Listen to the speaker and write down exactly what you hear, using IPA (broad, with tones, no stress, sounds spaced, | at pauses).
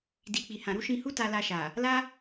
d i˨ k͡p i˨ h ã˨ ɾ u˨˦ ʃ ĩ˧ h u˦ t a˧ l a˧ ʃ a˨ | l a˦